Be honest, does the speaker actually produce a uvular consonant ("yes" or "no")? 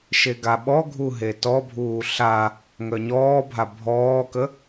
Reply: no